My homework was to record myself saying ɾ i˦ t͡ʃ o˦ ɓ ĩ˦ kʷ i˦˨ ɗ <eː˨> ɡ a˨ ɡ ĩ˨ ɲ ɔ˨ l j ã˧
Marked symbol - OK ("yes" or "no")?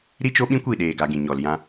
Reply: yes